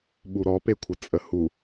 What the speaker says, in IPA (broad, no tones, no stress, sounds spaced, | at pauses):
ɓ u ɾ ɔ p e kʷʰ ə t͡sʼ ə h u